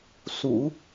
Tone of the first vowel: low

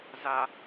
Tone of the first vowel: low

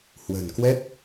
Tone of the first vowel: low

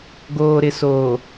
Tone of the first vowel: low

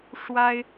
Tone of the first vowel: high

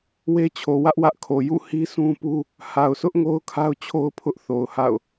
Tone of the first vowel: high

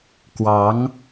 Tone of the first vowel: rising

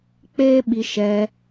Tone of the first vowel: high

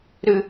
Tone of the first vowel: high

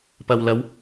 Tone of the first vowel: low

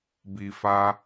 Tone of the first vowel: low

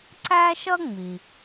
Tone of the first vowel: high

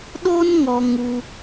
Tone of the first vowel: high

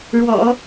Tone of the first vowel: low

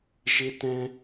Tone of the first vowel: high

